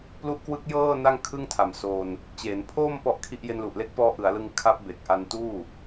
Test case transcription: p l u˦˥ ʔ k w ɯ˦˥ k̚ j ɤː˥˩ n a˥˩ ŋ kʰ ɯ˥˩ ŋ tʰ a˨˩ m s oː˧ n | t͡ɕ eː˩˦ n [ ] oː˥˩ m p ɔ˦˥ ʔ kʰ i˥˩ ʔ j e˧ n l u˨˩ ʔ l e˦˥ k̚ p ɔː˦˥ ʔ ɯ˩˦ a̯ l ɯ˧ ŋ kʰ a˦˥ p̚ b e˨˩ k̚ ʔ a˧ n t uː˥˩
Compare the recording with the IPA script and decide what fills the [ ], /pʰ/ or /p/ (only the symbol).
pʰ